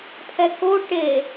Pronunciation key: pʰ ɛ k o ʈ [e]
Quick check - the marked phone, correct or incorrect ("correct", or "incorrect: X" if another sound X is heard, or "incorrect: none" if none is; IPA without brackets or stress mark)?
correct